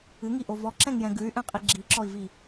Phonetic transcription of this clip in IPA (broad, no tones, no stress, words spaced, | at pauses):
ɨŋiʔo vɔǁɛ̃ŋjɛ̃ ɡʉy̯ʔɛ̃qʼi ɡ͡ǁiǁɔi̯vi